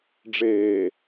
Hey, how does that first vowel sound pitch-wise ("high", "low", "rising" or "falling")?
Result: low